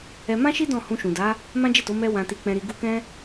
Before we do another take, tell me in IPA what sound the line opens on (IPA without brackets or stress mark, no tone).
ɛ